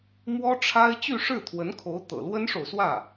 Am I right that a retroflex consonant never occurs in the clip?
no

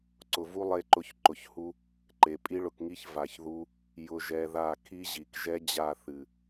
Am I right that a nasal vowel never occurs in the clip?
yes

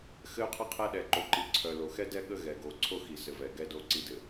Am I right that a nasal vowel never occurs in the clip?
yes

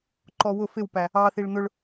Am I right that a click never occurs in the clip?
no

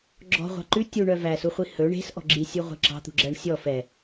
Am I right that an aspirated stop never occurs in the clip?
yes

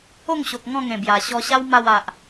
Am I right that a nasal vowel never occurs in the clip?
no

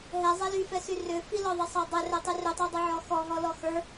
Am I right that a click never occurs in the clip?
yes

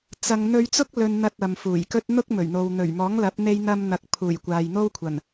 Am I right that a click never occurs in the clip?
yes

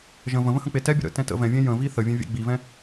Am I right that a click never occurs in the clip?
yes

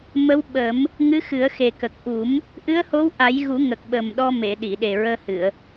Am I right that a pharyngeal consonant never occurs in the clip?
yes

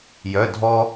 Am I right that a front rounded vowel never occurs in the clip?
no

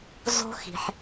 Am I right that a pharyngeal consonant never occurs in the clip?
no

